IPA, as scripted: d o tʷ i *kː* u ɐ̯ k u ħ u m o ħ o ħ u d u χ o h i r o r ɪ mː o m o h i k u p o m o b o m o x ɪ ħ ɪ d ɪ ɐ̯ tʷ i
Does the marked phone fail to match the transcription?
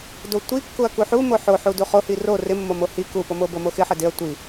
no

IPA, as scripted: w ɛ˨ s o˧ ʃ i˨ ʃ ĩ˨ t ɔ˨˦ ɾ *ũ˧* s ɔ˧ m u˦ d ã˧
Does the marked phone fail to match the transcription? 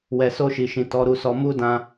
yes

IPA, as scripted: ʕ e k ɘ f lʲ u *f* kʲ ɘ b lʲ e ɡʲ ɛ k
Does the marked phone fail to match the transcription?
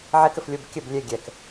yes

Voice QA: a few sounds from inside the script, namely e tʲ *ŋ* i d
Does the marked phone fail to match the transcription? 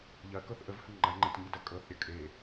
no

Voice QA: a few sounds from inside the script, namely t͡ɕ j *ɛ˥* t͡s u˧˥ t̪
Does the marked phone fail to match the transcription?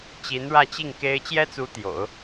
no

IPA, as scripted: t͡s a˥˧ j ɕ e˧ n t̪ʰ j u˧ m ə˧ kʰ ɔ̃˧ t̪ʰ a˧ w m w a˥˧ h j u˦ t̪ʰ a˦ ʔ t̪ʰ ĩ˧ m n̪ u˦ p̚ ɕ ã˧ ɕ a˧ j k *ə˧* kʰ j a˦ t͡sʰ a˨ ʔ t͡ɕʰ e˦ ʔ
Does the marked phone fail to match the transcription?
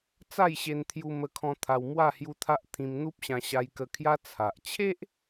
no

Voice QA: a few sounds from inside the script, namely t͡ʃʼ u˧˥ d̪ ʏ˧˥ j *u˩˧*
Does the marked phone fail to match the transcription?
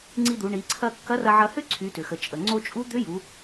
no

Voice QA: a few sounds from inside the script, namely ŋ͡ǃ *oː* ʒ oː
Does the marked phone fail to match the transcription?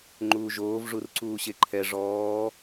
yes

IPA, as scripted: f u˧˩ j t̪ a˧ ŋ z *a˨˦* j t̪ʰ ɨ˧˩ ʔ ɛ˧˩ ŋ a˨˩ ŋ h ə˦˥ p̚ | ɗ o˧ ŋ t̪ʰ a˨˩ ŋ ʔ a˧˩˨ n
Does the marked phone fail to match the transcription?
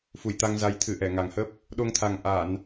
no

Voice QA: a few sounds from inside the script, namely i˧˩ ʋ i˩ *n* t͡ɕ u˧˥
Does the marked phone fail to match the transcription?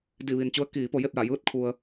no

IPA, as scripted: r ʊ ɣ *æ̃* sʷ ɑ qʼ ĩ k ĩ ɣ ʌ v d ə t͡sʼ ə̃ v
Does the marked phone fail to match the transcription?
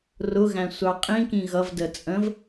no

